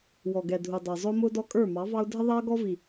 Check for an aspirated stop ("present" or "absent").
absent